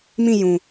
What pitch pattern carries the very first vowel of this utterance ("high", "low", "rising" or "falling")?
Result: falling